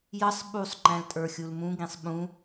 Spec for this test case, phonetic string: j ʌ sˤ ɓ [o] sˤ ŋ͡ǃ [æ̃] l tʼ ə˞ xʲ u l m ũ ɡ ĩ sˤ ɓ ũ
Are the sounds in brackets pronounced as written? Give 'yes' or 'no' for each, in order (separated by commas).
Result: no, yes